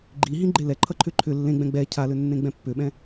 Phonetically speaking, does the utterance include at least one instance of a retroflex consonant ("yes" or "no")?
no